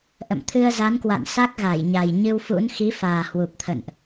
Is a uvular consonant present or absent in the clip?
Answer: absent